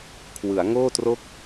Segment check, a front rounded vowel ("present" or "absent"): absent